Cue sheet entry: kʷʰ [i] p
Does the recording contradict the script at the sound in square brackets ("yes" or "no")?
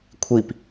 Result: no